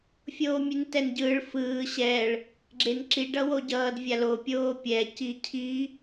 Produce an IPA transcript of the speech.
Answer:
fʲ oː mʲ e n t ɛ n ɟ ɯː ɭ f ɯː ɕ ɛ ɭ | ɡ͡ǁ e n ǁ i ɖ ʌ w o ɟ ʌː d vʲ a l o pʲ oː pʲ ɛ c i cʰ i

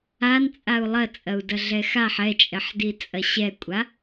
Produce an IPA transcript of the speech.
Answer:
a n t͡sʼ a u̯ lˠ ɐ t͡sʼ ɐ u̯ d ɐ ɮ ɛ x a ħ ɛ t͡ʃʼ ɛ ħ d i t͡sʼ ɐ ɕ ɛ kʷʼ a

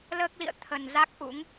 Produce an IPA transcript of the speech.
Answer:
l əː˦˥ k̚ l ḭ˧˨ ə̯ t̪ʰ ə˨˩ n z a˦˥ k̚ ʔ ṵ˧˥ ŋ

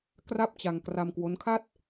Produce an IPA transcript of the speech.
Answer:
k r a˥˩ p̚ t͡ɕ a˧ ŋ k r a˧ m k w o˦˥ n kʰ a˥˩ t̚

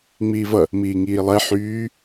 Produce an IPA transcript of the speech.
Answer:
ŋ͡m iː v ʌ | m iː ŋ iː lˠ ɛ ħ yː

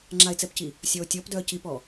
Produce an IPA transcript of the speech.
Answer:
ŋ͡ǁ a ɪ̯ t͡s ɛ p c i | sʲ ɔ ʊ̯ tʲ ɔ p d œ ə̯ c i p ɔ

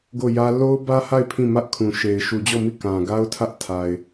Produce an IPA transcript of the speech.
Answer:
ɡ o˦˨ j ä˦ l o˦ ʊ̯ b ä˦ h a˦˨ ɪ̯ pʰ ĩ˦˨ m ä˦ ʔ kʰ ũ˨ ʃ e˨ ɪ̯ ʃ u˨ d͡ʑ ɔ˦˨ m i˦˨ k ã˨ ɡ a˦ ʊ̯ tʰ ä˦ ʔ tʰ a˨ ɪ̯

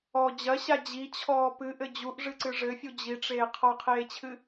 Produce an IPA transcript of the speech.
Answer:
ɔ d͡ʑ ɐ ɕ a d͡ʑ i t͡ɕʰ ɔː p ɨ ʔ ɘ d͡ʑ u ʔ ʐ ɨ ǀ ɨ ʐ ɘ fʲ u d͡ʑ i ʈ͡ʂ eː qʰ ɔ qʰ eː t͡ɕʰ ɨ

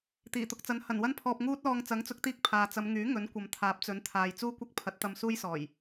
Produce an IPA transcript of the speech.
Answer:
t̪ iː˨˩ t̪ ʊ˧ k̚ t͡s ɐ˨˥ n h ɐ˨˩ n w ɐ˥ n pʰ ɔː˧ p̚ ŋ uː˥ t̚ l ɔː˧ ŋ t͡s ɐ˨˥ ŋ t͡s ʊ˨˥ k̚ t̪ iː˧ k̚ pʰ aː˨ t͡s ɐ˨˧ m ŋ yː˨˥ ŋ ɵ˨˥ n kʷ ɐ˨ m t̪ʰ aː˨˥ p̚ t͡s ɵ˨˥ n t̪ʰ aː˨ j t͡s uː˥ kʷ ɐ˥ k̚ pʰ ɐ˨˥ t̚ t̪ ɐ˧ m s uː˥ j s ɔː˨˩ j

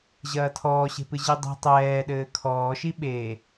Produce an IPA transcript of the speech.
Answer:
ʑ ɐː tʰ ɔː ɕ e̤ p ɨ ʑ i dˤ i̤ tˤ ɛː ɗ ɘː kʰ ɔː ʃ i ɓ e

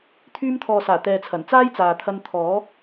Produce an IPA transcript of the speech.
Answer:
t̪ʰ yː˧ m t̪ʰ ɔː˨ s aː˨˩ t̪ ɛː˨ t͡sʰ ɐ˨˩ n t͡s aː˥ j t͡s aː˨ t̪ʰ ɐ˧ n t̪ʰ ɔː˨˥

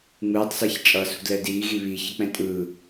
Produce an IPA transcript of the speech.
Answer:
ŋ͡m ɯː tˤ s a ç t͡ʃʼ ʌ s ṳ d l ɛ d iː ɣ i β i ç ʌ k͡p ɛ̃ tʼ ɯː

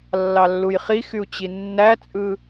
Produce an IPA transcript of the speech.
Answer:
lː ɑ lː u j χ i x y u̯ t͡ɕ i nː æ t͡sʼ ɯ

